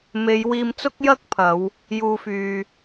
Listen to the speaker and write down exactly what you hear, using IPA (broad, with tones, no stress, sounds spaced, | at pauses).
m e˨˧ j w iː˧ m t͡s ʊ˥ k̚ j ɐ˥ k̚ pʰ ɐ˨˧ w | j uː˨ f yː˨